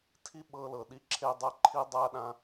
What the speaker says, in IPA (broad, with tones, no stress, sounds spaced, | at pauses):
tʰ i˦ ɓ ɤ˧ l ɤ˨ ɗ i˧ ǁʰ e˦ dˤ a˦ ǃʰ i˦ dˤ a˦ ɗ ã˦